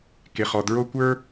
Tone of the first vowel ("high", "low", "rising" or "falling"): low